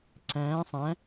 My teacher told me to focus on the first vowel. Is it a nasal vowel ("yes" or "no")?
yes